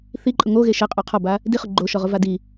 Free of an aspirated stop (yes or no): no